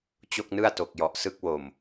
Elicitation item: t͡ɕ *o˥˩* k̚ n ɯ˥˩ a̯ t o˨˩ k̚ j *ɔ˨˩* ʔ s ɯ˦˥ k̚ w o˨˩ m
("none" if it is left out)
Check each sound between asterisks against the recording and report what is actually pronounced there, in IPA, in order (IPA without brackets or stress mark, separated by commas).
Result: o˥˩, ɔ˨˩